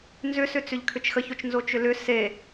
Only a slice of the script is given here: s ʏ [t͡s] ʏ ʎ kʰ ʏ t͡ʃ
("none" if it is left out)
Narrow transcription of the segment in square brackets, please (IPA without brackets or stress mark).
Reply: t͡s